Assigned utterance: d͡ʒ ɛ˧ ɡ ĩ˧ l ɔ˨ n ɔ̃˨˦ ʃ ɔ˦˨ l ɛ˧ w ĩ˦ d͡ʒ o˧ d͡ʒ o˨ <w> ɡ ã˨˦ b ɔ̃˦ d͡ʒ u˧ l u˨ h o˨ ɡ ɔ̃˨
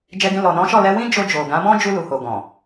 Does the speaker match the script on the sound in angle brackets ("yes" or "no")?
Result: no